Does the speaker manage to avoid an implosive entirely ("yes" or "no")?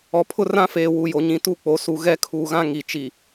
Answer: yes